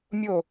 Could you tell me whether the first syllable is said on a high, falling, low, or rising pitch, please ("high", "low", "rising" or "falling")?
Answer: falling